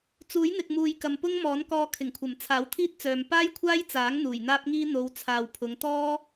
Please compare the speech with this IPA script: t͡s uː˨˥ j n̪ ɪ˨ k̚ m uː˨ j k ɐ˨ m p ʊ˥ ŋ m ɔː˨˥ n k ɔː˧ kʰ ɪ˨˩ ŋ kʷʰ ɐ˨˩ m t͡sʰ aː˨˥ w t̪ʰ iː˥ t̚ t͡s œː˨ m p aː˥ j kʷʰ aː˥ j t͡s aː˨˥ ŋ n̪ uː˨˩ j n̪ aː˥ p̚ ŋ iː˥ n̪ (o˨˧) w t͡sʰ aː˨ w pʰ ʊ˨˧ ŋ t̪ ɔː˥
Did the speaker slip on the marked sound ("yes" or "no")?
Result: no